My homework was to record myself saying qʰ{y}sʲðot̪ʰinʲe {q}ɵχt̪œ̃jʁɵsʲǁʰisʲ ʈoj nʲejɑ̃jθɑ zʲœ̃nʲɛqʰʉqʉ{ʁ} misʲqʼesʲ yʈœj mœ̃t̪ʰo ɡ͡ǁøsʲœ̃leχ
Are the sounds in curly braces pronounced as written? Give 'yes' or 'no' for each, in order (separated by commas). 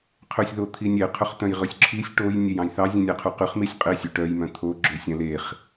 no, no, no